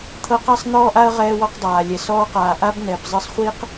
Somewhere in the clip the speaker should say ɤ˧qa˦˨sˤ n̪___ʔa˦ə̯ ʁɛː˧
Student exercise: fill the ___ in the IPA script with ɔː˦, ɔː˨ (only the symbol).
ɔː˦